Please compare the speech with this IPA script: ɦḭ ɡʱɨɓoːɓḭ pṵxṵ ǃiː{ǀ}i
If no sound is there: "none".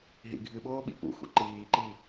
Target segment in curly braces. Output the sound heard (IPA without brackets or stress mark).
ǃ